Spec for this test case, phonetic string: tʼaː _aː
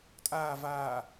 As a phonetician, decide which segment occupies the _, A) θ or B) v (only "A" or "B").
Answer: B